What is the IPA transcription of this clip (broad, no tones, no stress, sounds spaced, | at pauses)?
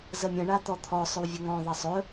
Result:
z ə mʲ ə̃ ɳ a t̪ ɔ t̪ʰ ɔ sˤ ɵ w vʲ ə ŋ ɔ̃ ðˤ ɐ sˤ ɵ